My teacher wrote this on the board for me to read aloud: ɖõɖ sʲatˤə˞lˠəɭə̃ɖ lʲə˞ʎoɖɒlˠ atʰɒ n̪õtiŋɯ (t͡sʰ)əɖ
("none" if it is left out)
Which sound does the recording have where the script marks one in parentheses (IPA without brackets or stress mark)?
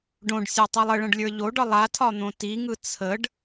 t͡sʰ